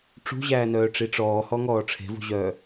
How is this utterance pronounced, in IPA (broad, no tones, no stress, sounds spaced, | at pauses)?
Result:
ʈ͡ʂ ṳ ʑ æː n œː ʈ͡ʂ i ʈ͡ʂ ɔː h ɔ ŋ ɔː ʈ͡ʂʰ e̤ v ṳ ʑ œː